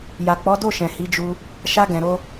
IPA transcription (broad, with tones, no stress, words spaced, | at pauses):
ja˨k͡pɔ˨˦do˦˨ʃɛ̃˨ hi˨˦d͡ʒu˧ | ʃa˧ɡɛ̃˨ɾo˧